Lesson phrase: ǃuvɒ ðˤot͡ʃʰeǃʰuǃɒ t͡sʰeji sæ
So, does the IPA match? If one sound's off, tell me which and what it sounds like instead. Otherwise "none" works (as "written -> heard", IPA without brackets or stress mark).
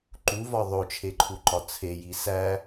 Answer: none